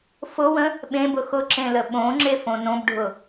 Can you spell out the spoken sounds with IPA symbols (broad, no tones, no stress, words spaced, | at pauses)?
fʊwə̃ | ɓẽbʊ xʊǁẽlə ɓõŋ͡ǁefõ nõbɖʱʊ